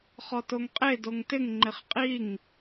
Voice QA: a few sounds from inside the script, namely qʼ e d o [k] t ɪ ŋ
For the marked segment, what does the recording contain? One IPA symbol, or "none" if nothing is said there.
ŋ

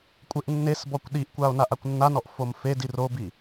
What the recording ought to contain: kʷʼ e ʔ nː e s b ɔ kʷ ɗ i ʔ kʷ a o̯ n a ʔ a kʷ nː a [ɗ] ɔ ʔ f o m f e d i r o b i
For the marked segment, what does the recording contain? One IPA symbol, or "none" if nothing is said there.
n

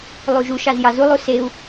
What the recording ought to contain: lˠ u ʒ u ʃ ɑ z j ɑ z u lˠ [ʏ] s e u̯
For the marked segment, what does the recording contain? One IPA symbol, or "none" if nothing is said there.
u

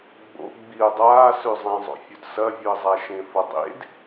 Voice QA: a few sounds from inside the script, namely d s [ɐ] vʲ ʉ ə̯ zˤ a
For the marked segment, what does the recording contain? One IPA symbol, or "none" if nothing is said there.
ɐ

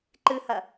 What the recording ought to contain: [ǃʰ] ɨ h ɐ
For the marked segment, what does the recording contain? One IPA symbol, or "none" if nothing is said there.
ǃ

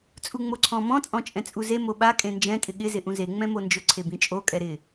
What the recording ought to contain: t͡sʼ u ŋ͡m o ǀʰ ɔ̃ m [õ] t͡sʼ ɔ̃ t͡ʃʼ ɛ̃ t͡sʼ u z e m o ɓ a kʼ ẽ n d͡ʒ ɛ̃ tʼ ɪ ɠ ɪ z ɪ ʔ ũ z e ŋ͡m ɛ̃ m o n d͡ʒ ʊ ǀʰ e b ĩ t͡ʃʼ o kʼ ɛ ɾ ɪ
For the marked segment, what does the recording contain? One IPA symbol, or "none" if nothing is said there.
ɔ̃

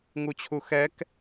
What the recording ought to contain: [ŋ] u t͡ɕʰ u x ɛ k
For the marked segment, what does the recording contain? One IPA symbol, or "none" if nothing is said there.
ŋ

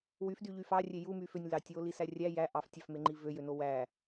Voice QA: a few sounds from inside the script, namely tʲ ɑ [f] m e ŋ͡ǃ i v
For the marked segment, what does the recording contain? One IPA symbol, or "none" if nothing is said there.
f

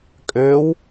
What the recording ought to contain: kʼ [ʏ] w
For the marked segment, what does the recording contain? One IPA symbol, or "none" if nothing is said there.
ʏː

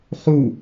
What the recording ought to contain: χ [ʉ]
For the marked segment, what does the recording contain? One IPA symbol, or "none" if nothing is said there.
u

